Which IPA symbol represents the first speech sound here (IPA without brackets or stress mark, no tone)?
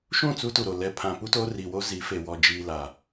ʃ